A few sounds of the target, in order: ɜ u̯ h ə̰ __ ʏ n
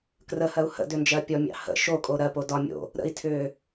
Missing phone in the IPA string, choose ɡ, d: d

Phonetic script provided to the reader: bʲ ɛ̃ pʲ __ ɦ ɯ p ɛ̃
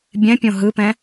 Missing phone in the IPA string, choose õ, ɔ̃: õ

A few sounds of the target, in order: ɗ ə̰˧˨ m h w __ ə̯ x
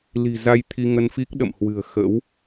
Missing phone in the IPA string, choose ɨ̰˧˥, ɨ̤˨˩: ɨ̤˨˩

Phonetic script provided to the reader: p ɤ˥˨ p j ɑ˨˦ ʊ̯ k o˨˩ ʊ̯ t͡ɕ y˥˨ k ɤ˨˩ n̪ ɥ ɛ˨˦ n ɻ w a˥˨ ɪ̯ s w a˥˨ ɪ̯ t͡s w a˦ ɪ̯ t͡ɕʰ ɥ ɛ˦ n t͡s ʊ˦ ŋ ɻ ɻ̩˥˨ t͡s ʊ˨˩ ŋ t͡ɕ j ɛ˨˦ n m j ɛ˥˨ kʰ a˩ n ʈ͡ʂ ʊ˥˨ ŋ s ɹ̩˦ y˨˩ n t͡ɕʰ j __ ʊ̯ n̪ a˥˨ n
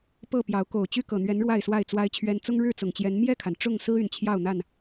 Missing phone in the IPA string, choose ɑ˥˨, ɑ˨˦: ɑ˥˨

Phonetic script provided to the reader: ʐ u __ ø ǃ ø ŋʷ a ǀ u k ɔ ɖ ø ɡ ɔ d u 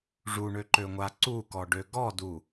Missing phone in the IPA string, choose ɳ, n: ɳ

